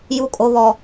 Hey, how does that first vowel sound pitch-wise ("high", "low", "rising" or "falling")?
low